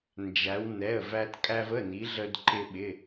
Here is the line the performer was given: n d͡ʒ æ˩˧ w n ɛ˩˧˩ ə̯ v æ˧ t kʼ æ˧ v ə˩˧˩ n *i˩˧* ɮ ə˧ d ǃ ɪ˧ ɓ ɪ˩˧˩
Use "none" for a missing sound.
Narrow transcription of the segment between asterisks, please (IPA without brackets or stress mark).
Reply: i˩˧